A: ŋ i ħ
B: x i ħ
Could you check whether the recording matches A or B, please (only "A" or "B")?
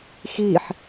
B